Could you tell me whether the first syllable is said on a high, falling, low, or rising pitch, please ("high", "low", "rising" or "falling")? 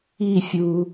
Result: falling